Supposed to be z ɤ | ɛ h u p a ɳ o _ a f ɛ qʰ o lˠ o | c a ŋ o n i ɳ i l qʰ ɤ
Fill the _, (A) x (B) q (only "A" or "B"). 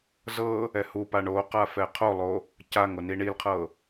B